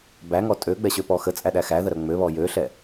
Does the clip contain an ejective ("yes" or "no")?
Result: yes